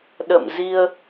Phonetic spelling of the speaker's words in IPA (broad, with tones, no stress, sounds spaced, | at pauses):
ɗ ə̰˧˨ m z i˧ ə̯